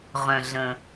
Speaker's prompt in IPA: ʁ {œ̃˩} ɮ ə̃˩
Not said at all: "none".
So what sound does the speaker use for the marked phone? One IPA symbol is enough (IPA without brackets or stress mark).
œ̃˩